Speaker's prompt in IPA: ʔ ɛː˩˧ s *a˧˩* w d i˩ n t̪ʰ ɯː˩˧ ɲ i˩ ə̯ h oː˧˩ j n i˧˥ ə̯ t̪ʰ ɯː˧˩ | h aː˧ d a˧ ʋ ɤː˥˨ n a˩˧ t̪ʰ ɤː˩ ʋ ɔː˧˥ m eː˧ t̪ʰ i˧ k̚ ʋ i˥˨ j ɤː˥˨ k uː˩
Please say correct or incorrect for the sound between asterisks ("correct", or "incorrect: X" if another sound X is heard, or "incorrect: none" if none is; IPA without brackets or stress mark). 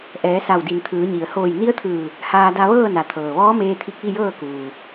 correct